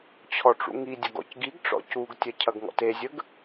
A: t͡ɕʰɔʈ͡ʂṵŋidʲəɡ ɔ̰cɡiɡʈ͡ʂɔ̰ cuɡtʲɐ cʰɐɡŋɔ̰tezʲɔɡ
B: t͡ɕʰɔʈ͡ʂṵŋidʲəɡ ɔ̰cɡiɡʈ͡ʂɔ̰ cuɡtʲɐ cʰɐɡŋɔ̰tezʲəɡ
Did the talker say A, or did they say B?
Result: B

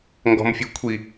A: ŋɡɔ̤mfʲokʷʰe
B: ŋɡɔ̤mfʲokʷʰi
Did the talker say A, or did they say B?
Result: B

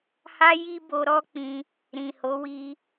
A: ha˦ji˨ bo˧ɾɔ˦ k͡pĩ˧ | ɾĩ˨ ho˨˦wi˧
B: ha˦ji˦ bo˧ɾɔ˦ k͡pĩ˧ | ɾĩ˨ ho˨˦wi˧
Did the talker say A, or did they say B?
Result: B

